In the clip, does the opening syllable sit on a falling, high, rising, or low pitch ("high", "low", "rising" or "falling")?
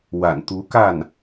low